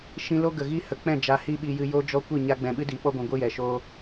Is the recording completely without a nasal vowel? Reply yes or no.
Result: no